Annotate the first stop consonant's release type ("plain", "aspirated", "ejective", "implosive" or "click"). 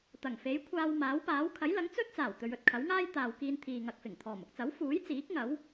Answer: plain